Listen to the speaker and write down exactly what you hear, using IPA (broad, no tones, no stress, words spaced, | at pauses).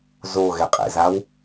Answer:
zoɣɛ qʼɛ̰zaw